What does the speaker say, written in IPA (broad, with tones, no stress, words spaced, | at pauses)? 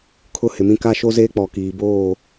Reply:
kʰʊ˦hɪ˨mĩ˦ ka˦ʃo˦zeː˦ k͡pɔ˨kiː˨ boː˦˨